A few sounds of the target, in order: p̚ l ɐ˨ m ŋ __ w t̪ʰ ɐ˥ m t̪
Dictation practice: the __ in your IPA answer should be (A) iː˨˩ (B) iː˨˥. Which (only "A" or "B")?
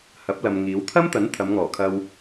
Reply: B